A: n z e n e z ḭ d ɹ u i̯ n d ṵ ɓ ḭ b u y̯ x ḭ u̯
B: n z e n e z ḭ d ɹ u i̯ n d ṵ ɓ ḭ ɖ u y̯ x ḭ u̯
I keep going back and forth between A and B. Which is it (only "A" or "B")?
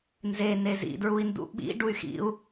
B